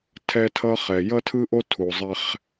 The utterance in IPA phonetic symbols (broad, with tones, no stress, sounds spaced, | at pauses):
tʰ ɛ˦ tʰ ʌː˦ χ ɛ˨ j ʌ˦ tʰ ɯ˦ ʔ o˦ tʰ u˨ zˤ ɛ˦ χ